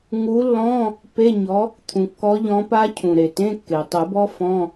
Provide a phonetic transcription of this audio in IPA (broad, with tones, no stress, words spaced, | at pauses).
ŋu˨˥lːɔ̃˧˥˧ | pe˧˥˧ɲɔ˨˥ | t̪ʰũ˩kːɔ˨˥ʎɔ̃˨˥pa˦˥ cʰũ˩ɾe˩ tẽ˧˥˧kːe˩tˤɨ˨˩˦bɔ˦˥ fɔ̃˧˥˧